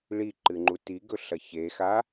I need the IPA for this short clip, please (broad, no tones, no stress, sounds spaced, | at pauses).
ɭ i ǃ ɨ ŋ͡ǃ u t i ɡ ɵ ɬ ɐ ç e x a